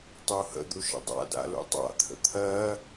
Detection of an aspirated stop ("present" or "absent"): present